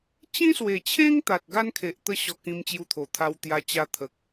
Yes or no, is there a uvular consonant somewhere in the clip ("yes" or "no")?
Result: no